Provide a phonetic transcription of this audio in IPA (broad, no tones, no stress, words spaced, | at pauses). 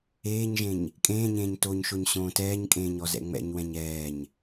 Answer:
eːɲʒẽɲ | kʼẽːɲẽːɲ toɲʃoɲ ɕõːtɛːɲkʼẽːɲ ɔzɛ̰ŋ͡mɛ̰ɲwɛ̃ɲ ɛːɲ